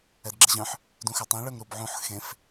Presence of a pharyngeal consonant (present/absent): present